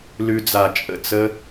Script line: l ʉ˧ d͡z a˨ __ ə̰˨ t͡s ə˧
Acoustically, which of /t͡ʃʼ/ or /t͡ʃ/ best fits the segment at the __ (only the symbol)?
t͡ʃʼ